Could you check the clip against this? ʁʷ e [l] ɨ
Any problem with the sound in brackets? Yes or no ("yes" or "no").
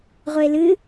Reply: no